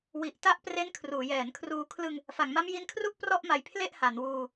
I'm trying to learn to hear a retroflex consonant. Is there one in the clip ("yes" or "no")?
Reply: no